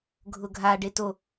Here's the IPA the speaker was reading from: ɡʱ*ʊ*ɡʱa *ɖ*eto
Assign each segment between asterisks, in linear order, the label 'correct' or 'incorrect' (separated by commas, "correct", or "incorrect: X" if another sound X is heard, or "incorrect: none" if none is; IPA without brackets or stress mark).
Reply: correct, correct